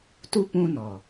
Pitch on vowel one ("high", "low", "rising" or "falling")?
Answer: high